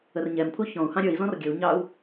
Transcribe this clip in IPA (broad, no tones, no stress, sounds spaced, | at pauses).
ə r ɲ ɛ m pʰ u ç ɔ̃ u̯ h ɑ̃ ɾʲ ə˞ i̯ z ɔ̃ r ɡʲ ə u̯ ɲ ɑ u̯